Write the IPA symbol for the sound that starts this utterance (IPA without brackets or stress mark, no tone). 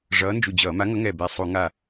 ʐ